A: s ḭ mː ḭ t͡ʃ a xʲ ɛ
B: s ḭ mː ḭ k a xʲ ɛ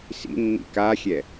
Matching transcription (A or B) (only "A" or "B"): B